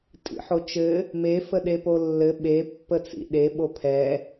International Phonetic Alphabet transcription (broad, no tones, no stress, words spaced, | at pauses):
tʼḭħot͡ʃɘ | me fəɗepolːɘ ɓe pːət͡sḭɗe ɓopʰɛ